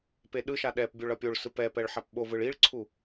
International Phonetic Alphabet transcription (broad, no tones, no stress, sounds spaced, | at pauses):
p e ɗ ɯ ʃ a ɗ ɛ p bʲ o ɭ ʌ pʲ o ɭ s ɯ p ɛ p ɛ ɭ ħ a p ɓ o v ɯ ɭ i ɭ ǀʰ u